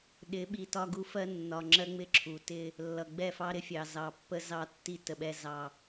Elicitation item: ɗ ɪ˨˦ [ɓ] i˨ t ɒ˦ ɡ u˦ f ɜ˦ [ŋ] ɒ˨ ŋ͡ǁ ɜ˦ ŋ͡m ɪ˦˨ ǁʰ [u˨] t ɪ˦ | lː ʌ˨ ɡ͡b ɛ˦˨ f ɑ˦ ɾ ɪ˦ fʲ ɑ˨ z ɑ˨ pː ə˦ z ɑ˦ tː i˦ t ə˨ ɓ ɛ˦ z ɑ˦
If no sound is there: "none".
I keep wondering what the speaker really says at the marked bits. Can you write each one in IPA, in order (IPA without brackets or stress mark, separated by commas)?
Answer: ɓ, nː, u˨